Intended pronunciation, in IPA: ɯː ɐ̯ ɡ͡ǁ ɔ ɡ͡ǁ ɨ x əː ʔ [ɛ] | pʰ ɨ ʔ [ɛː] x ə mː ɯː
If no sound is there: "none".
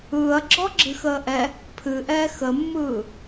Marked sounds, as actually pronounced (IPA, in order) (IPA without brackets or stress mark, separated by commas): ɛ, ɛː